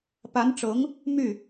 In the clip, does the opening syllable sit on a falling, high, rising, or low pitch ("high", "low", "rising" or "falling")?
rising